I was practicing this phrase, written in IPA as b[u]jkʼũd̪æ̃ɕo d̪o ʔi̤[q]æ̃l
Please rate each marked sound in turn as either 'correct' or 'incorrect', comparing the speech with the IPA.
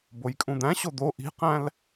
incorrect, correct

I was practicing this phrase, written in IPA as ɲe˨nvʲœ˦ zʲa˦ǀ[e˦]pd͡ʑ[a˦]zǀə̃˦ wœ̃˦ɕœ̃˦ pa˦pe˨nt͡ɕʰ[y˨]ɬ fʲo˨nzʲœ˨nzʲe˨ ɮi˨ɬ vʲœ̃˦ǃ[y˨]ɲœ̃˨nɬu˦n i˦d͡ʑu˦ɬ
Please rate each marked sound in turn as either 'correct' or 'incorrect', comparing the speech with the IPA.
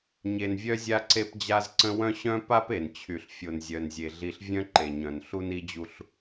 correct, correct, correct, incorrect

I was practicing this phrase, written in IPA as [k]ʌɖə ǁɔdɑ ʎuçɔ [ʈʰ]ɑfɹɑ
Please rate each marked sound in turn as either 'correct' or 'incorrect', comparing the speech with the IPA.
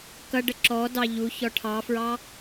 correct, correct

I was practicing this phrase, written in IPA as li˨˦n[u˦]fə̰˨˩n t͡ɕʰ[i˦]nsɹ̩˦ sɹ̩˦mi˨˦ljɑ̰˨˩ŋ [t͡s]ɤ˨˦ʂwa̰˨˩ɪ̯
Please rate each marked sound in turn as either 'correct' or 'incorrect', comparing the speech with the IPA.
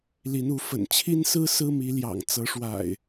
incorrect, correct, correct

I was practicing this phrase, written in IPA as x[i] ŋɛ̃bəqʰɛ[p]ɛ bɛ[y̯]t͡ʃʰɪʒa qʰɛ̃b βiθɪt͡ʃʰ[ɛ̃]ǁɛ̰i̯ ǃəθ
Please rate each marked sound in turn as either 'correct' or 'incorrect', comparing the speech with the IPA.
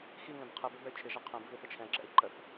correct, incorrect, correct, correct

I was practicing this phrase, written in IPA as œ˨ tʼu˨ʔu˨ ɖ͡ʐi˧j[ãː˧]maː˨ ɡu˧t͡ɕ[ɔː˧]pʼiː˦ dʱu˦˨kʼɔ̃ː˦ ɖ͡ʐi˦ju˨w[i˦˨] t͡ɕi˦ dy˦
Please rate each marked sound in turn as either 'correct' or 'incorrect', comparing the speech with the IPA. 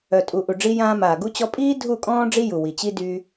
correct, incorrect, incorrect

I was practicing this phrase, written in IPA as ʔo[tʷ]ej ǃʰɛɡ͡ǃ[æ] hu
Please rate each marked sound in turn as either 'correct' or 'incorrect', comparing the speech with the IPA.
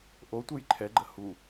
correct, incorrect

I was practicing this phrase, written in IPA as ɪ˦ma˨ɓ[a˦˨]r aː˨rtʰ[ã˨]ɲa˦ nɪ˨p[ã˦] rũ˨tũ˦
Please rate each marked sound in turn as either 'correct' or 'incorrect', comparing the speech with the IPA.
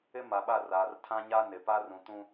correct, incorrect, incorrect

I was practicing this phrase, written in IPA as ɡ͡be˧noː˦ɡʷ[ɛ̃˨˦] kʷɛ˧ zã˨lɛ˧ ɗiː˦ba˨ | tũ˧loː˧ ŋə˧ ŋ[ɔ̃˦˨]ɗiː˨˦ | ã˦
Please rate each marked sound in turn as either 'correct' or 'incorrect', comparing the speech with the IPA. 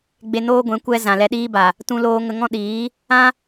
correct, incorrect

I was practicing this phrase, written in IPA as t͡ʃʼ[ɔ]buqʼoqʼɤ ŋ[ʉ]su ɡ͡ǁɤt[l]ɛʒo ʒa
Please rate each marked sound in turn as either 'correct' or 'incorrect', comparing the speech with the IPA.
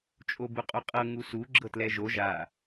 incorrect, incorrect, correct

